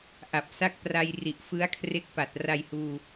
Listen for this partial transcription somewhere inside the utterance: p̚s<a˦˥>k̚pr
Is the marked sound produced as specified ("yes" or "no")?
yes